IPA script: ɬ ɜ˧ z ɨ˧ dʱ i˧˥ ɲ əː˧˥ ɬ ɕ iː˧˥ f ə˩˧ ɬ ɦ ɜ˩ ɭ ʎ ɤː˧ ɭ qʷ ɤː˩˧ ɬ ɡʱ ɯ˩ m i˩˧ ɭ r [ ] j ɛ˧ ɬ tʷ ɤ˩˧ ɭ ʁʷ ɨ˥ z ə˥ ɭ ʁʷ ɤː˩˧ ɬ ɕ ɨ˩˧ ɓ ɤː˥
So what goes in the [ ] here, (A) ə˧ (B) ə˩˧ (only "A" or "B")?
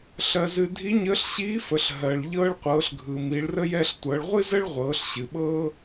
A